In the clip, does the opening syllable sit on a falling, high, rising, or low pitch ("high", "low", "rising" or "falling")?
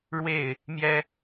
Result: falling